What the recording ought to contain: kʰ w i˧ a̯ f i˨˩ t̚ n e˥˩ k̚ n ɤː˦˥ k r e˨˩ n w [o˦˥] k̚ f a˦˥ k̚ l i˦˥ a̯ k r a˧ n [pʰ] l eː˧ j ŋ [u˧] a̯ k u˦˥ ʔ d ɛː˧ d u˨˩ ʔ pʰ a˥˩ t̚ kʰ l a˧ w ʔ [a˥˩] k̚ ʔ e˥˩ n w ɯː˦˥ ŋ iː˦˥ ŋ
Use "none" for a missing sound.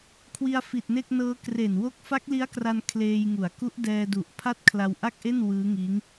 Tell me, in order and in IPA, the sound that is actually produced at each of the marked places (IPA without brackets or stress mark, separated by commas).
o˦˥, kʰ, u˩˦, a˥˩